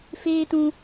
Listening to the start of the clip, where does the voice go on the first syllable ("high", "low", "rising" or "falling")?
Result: high